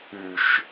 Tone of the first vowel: low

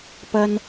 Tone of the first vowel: high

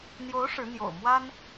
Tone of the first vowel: rising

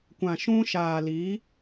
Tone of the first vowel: low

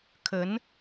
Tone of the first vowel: rising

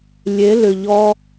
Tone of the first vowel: rising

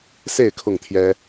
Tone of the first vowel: falling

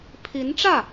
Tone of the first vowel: rising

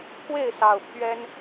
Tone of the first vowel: falling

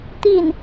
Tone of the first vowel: falling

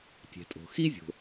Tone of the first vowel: low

